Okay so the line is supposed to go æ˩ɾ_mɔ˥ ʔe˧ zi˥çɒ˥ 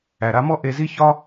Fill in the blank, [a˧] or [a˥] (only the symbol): a˧